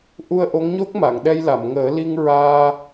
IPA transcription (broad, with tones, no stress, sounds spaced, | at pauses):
ʔ u˧ ə̯ ʔ o˧˥ ŋ ɲ o˦˥ k̚ m a˨˩˨ ŋ ɗ ɛ˧ j l a˨˩˨ m ŋ əː˨˩˦ l i˧ ŋ ɹ aː˧